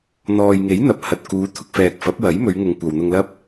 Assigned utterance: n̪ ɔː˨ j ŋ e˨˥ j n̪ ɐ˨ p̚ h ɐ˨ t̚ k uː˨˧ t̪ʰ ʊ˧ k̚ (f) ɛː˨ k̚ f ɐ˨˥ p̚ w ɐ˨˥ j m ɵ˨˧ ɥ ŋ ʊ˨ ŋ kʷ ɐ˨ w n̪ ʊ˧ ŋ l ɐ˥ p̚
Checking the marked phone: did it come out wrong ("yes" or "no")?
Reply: no